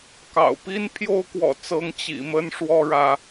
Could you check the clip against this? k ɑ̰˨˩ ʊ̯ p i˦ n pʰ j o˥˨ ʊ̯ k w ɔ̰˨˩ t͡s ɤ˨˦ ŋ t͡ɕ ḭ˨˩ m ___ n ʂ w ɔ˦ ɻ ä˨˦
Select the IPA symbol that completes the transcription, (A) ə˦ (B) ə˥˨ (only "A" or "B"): A